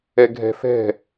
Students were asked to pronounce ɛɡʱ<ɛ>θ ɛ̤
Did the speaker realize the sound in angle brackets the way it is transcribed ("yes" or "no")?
no